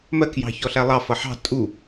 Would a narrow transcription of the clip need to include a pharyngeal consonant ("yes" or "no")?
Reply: yes